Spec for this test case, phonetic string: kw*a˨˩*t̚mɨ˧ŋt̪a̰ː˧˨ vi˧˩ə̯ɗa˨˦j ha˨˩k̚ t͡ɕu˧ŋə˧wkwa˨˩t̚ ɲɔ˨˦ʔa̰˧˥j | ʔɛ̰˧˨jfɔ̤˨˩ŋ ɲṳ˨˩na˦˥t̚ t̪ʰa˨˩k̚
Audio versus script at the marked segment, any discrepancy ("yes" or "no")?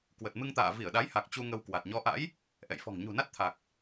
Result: yes